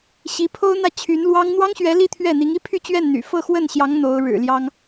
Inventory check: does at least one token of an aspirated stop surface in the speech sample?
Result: yes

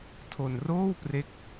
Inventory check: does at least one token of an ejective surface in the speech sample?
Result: no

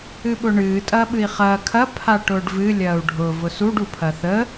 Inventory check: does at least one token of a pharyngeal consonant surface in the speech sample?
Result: no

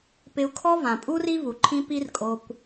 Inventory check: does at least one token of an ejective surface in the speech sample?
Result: yes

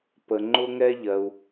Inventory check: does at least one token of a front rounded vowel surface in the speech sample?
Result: no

